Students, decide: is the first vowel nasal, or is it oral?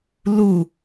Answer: oral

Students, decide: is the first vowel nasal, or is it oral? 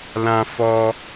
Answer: nasal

